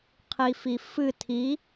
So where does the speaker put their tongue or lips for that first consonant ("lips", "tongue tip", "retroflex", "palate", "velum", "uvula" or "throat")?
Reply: uvula